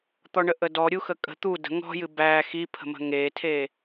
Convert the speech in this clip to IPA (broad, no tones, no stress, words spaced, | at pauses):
t̪ɔɳəʔədɔ ɾʲuxəkʼə̤ t̪u də̤ ŋɔ̤jɨ bæ xi pʰə̤mə̤ŋetʰe